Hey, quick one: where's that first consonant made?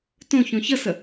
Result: tongue tip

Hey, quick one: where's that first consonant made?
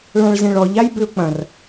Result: retroflex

